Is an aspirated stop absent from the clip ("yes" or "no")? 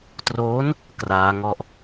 yes